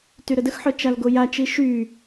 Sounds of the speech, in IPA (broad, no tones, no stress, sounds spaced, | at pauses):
t y ɾ ə d ə x ħ œ t͡ʃ a l ɡ o j a t͡ʃ i ʃ y